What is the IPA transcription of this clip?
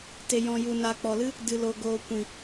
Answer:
t e˨ j ɔ̃˨ j u˨ n a˨ k͡p ɔ˨ l ɨ˦ | d ɨ˨ l o˨ ɡ oː˨ kʷ ĩ˨

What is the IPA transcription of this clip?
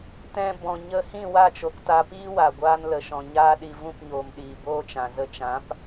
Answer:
t ɛ̃˧ b ɔ̃˨ ɲ ə˧ h ĩ˦˨ w a˦˨ t͡ʃ o˨ k t a˧ p iː˦ w a˨ ɡʷ aː˧ n l ə˨ ʃ ɔ̃˨ ɲ aː˧ ɗ i˨ v ũ˦˨ p ɲ oː˨ m ɗ iː˨ b oː˦ t͡ʃ ã˨ z ə˧ t͡ʃ ã˨˦ p

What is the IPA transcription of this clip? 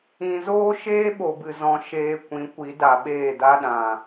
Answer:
ĩ˧ z oː˦ ʃ eː˦ ɓ o˨ b ɨ˨ z ɔ̃˧ ʃ eː˧ kʷ ĩ˨˦ kʷ i˨˦ d a˨ ɓ eː˦˨ d a˦ ɗ ã˨

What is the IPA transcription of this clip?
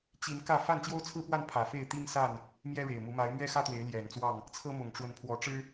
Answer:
t͡ɕ i˨˦ n k ä˥˨ f a˥˨ n t͡ɕ j o˦ ʊ̯ t͡sʰ ɹ̩˦ p w a˥˨ n pʰ ä˨˩ f e˥˨ ɪ̯ t̪ i˦ ŋ s a˥˨ n | m j ɛ˦ ɻ e˨˩ ɪ̯ m u˨˦ m a˨˦ ɪ̯ m ɥ ɛ˦ x ä˦ t̪ w e˨˦ ɪ̯ l j ɛ˨˩ n t͡s w ɑ˥˨ ŋ | t͡sʰ ɤ˦ m ʊ˨˩ ŋ ʈ͡ʂ w ə˨˦ n pʰ w ɔ˨˦ ʈ͡ʂ ɻ̩˦

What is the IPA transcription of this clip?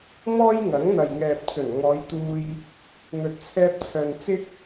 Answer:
m ɔː˥ j ŋ ɐ˨˥ ŋ n̪ ɐ˨ j ŋ ɛː˨ p̚ t͡s ɵ˨˩ n ŋ ɔː˨˧ j t̪ uː˧ j | n̪ ɵ˧ t̚ t͡sʰ ɛː˥ p̚ t͡sʰ œː˧ n t͡s ɪ˥ k̚

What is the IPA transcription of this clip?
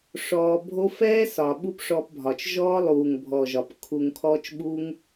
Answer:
ʂ ɔː˧ bʱ o˦ f ɛː˦ s ɒ˨ ɓ u˦ p ʂ ɔ˧ p bʱ ɒ˨ t͡ʃ ʒ ɔː˦ lˠ uː˨ ŋ bʱ ɔ˨ ʒ ɒ˨ p kʰ u˨ ŋ kʰ ɔː˧ t͡ʃ ɓ u˦ ŋ

